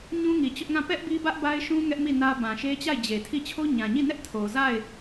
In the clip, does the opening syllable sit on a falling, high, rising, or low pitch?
high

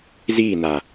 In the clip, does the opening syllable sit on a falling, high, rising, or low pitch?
falling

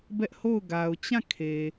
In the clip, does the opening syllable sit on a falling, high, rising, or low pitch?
high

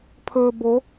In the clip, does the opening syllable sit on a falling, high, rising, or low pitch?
low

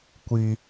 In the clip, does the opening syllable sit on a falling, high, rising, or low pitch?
high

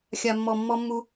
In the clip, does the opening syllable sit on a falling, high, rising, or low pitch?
low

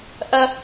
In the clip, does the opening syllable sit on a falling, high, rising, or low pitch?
high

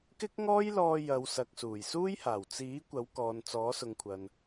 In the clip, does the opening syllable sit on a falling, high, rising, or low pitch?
high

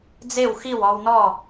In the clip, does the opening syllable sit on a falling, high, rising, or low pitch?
falling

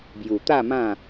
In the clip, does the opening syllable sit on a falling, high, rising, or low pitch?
low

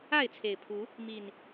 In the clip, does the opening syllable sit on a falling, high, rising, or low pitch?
falling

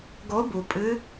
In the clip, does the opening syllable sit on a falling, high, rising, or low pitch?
rising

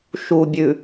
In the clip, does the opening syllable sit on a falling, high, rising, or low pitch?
low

